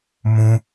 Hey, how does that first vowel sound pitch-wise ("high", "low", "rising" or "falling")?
high